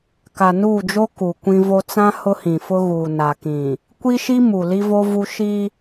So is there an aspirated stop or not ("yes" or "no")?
no